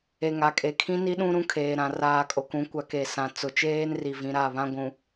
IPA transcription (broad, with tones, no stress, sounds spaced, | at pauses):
e˨ ŋ a˨ kʼ e˨ kʰ ĩ˦ n i˦ ɗ ũ˦ ɾ ũ˦ kʰ eː˨ ɾ ã˨ r aː˨ kʼ o˨ k ũ˨˦ kʷ a˨ k e˨ s ã˨ t͡s ʊ˨ t͡ʃ eː˦ n r i˨ v ĩ˨ ɾ a˦˨ β ã˦ ɡʷ ũ˨